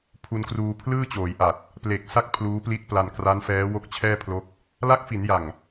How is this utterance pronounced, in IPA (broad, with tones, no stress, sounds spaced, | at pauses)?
pʰ u˧ n k r uː˧ pʰ l ɯː˥˩ t͡ɕ oː˩˦ j ʔ a˨˩ t̚ | p l e˨˩ k̚ s a˥˩ k̚ pʰ l uː˦˥ p l i˦˥ t̚ p l a˧ n k r a˦˥ n f ɛː˦˥ w o˦˥ k̚ t͡ɕʰ ɛː˥˩ pʰ l o˦˥ k̚ | l a˦˥ k̚ f i˩˦ n j a˨˩ ŋ